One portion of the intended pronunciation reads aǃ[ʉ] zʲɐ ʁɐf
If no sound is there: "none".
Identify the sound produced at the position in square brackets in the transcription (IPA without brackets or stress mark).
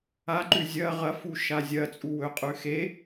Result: ʉ